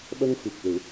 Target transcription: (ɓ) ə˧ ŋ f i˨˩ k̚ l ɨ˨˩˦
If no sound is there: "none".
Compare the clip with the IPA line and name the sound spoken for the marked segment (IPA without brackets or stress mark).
ɓ